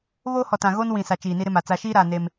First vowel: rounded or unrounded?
rounded